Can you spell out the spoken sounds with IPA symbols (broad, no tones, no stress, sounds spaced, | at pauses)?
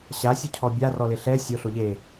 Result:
ɕ a sʲ u cʰ ɔ bʲ a r ɔ l ɪ ɬ ɛ sʲ o ɬ o ʎ e